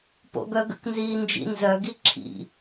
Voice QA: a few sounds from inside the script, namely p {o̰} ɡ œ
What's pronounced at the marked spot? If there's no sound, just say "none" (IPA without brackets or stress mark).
o̰